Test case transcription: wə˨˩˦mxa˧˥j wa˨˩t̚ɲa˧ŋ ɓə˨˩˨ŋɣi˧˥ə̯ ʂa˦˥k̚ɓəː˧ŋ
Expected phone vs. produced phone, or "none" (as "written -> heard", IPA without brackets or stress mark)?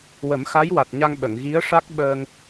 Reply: none